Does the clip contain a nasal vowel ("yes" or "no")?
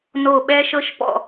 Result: no